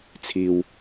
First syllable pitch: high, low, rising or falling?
low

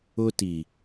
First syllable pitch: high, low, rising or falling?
high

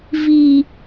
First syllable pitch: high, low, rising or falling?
high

